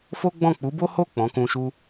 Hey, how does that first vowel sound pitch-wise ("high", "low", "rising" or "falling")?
high